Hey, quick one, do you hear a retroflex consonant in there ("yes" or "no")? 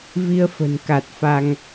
no